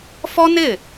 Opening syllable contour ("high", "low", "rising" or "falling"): high